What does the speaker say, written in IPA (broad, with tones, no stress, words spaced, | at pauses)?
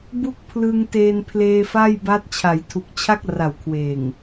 bu˥˩k̚pʰlɯ˧ŋteː˧n pʰleː˧fa˥˩jba˦˥t̚ t͡ɕʰa˩˦jtʰu˨˩k̚t͡ɕʰa˥˩k̚ ra˨˩wkʰweː˨˩ŋ